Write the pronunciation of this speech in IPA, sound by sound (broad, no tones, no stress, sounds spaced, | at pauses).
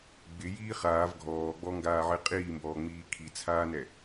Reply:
ɡ͡b ɪ j iː χ aː v ɡʱ ɔː ɡ͡b ɔ ŋ ɡ aː ʕ ɪ qʼ iː m b ɔː ŋ͡m iː kʰ i t͡sʰ aː n ɛ